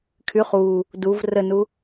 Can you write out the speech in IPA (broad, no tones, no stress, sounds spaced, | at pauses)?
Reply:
kʰ y χ u | d u v r ə n u